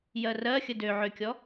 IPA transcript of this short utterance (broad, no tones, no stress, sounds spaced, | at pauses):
j ɜ r ɜ xʲ ə d ø ʕ ø kʲ ɔ